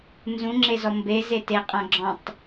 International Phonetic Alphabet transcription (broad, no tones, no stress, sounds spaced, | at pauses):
n z ũ ŋ͡ǁ e z ɔ m b e z e t e qʼ ã ɡ͡ǁ ɔ̃ tˤ